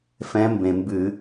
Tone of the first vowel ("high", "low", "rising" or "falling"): rising